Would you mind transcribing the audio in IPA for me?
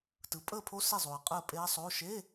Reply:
t ɯ˩˥ pʼ əː˥˨ pʰ o˦˥ s e˥˨ zˤ oː˨ ɐ̯ qʼ əː˥˨ pʼ e˦˥ ɐ̯ sˤ oː˧˥˧ ʃ e˧˥˧

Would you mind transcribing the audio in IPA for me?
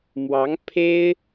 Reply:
m w ɑ˧˥ ŋ pʰ e˥ ɪ̯

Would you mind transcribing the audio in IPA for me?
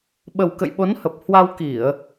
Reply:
ɓ ə˨˩ w k ə̰˧˨ j ɓ o˨˦ n h ə˨˩ p̚ h w a˧ w k i˧˩˨ ə̯

